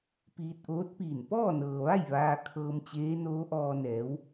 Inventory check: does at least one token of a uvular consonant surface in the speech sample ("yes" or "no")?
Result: no